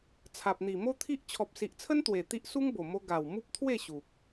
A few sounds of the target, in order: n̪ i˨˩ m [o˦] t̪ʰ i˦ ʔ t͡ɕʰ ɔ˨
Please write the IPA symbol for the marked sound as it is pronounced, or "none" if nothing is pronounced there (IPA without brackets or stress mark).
o˦